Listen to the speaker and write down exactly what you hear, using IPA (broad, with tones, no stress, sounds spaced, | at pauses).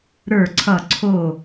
ɾ ə˞˥˨ ǀʰ ʌ˥˨ ǀʰ o˥˨